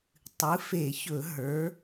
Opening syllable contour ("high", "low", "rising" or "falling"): rising